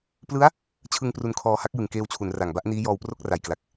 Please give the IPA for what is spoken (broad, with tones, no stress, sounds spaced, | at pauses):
p l ɯ˦˥ a̯ | t͡ɕʰ ɯ˧ ŋ p r u˧ n kʰ ɔː˧ h a˦˥ k̚ j ɯ˨˩ ŋ k eː˧ w t͡ɕʰ u˩˦ n r a˨˩ ŋ b a˥˩ ʔ n iː˦˥ j ɔː˧ w p r o˥˩ k̚ r a˨˩ j k l a˨˩ k̚